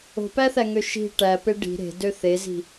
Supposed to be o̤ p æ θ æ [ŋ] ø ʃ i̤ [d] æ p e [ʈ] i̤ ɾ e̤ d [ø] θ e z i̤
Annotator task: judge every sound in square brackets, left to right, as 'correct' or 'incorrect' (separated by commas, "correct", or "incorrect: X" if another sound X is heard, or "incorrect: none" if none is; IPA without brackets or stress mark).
correct, incorrect: ʈ, incorrect: ɖ, correct